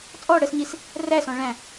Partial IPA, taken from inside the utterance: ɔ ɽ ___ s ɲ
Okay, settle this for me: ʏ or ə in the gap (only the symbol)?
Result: ə